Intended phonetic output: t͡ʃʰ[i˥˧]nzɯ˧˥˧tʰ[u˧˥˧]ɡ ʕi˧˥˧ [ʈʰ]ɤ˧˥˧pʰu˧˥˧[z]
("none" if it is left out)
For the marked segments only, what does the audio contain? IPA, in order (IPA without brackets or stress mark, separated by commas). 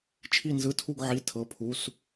i˥˧, u˥˧, tʰ, s